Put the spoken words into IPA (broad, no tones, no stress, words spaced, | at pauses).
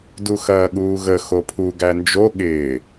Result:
duxɐːɠuːɣə xopʰu ɡænd͡ʒo ɠɪː